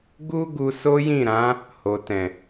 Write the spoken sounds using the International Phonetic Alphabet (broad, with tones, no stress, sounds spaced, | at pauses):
ɡ u˦ ɡ u˧ s o˦ j ĩ˦˨ ɾ ã˨˦ | h o˨ t ɛ̃˨